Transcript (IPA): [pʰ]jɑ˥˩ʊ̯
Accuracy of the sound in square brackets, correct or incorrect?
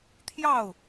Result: incorrect